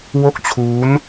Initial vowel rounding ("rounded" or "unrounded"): rounded